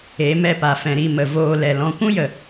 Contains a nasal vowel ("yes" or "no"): yes